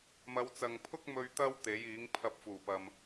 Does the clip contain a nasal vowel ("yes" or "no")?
no